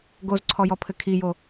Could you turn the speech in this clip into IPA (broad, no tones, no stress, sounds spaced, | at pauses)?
ɡ o z ǀʰ ɔ j ɔ pʰ ɘ kʰ i j o